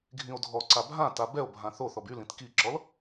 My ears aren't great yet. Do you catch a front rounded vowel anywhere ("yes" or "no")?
yes